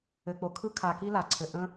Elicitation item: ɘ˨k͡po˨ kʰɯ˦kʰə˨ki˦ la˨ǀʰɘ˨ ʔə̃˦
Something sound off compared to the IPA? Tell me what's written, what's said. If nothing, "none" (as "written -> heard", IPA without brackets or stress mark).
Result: ə˨ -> a˨